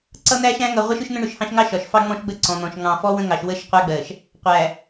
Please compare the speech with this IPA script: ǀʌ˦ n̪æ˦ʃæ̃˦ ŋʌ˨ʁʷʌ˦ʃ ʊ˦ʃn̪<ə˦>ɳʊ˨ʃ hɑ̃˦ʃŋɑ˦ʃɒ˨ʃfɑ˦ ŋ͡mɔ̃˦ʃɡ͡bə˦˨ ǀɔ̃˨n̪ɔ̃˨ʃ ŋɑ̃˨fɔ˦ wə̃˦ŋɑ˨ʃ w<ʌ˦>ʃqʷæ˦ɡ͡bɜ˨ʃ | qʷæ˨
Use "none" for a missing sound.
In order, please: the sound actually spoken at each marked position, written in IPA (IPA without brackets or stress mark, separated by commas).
ə̃˦, ə˦